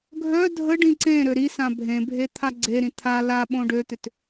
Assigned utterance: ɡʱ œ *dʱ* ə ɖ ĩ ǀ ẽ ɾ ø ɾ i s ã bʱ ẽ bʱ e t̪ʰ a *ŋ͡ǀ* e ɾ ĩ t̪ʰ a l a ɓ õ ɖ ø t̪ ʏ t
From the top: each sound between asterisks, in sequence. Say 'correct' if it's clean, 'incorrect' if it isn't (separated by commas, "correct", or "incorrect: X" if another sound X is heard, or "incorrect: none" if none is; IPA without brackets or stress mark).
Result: correct, incorrect: ɡ͡ǀ